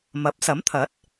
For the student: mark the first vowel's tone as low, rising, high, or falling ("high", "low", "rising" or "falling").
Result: rising